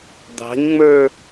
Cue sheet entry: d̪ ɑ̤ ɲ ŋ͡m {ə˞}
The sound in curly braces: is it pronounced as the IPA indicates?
yes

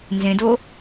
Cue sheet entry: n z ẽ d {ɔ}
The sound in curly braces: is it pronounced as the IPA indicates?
no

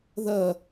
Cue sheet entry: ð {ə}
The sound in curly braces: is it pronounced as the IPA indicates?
no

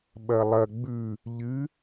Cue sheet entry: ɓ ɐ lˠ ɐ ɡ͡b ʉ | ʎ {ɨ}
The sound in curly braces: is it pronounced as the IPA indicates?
yes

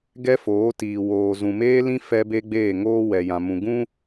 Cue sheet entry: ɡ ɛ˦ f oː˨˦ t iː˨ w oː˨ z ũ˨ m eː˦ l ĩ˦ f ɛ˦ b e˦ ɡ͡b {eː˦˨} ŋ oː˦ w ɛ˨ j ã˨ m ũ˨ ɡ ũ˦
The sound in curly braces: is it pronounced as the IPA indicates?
yes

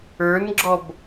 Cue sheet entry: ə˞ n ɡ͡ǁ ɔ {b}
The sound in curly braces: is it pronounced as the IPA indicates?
yes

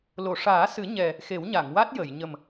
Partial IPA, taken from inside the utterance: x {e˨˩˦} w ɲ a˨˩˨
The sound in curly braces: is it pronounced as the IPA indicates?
yes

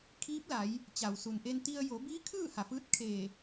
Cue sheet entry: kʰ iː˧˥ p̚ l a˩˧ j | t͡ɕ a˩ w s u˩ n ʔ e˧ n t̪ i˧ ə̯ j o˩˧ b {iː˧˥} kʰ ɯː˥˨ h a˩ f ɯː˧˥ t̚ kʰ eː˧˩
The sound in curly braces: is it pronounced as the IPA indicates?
yes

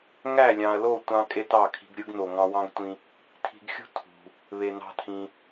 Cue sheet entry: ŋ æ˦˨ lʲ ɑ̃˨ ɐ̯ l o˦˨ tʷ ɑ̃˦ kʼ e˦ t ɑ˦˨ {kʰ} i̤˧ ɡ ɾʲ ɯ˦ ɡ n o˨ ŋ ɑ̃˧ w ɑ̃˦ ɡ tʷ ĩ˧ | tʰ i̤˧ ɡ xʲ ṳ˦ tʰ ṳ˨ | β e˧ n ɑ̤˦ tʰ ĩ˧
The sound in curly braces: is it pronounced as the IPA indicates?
yes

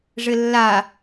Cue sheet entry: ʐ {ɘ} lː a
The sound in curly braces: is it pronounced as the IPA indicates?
yes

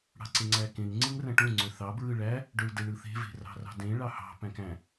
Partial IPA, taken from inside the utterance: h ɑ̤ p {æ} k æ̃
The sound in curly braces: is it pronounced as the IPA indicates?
no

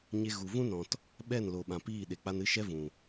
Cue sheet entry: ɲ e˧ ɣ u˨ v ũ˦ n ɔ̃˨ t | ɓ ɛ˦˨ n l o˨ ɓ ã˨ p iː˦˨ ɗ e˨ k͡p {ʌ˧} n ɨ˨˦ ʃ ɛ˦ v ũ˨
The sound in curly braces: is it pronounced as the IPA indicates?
no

